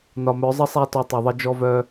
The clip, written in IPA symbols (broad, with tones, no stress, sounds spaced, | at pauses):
n ɒ˨ m œ˨˦ zˤ ə˦ sˤ æ˦ t ɔ˧ tˤ œ˨ ðˤ ə˧ d͡ʒ ɔ˦ v œ˦